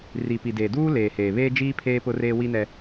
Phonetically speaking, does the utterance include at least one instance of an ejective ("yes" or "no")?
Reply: no